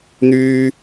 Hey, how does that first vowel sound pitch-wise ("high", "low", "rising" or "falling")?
low